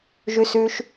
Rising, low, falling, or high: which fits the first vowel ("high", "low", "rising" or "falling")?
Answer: high